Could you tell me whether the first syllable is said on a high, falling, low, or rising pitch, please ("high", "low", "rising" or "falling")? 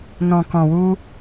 low